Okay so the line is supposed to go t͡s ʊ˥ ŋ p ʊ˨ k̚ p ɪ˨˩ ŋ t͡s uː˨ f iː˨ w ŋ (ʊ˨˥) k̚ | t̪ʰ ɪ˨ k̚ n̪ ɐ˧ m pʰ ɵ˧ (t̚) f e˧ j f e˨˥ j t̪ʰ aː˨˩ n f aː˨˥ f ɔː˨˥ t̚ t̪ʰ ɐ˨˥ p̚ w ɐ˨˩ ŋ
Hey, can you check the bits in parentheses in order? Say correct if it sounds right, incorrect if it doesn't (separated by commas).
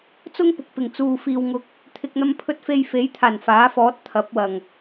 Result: correct, correct